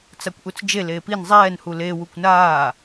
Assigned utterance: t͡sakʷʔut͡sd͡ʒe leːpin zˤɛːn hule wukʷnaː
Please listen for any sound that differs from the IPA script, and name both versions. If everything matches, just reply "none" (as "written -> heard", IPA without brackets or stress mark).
none